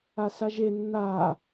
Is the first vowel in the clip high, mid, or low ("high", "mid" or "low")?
low